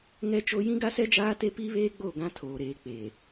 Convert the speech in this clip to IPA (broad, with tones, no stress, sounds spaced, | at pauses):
ŋ ɛ˦ t͡ʃ o˦ j ĩ˦ ɡ a˦ s ɛ˦ d͡ʒ aː˦ t e˦ p iː˦ β eː˦ ɡ͡b o˦˨ ɡ ã˦ tʰ oː˨ ɾ eː˨ k͡p e˨